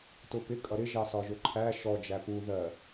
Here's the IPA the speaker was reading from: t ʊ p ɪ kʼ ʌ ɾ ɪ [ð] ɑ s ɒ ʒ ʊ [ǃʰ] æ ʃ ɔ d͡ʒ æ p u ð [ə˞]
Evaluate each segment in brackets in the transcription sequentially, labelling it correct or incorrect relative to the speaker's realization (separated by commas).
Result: incorrect, correct, incorrect